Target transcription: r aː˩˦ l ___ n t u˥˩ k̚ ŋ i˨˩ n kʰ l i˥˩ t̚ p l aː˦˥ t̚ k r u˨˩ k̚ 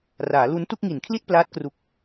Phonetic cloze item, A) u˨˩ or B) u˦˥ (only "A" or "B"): B